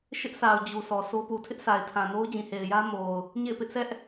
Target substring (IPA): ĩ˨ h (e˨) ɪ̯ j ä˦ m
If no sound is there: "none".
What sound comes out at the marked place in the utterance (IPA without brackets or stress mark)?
e˨